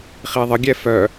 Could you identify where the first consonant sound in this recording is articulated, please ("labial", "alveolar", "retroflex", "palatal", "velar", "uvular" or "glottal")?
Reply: uvular